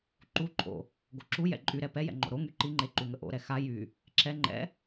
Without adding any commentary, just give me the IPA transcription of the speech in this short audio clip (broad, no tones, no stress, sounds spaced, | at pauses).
ǃ u ǃʰ o̰ | ɡ o ǁ u j ɛ̰ ǃʼ y ɾ ɛ p ɛ j ɛ̰ ŋ͡ǃ o̰ ɾ o ŋ y ǃ i ŋ͡ǃ e ǃ u ŋ ə ʔ o̰ ɾ ɛ x a j y | ǁ ɛ ŋ͡ǃ ɛ̰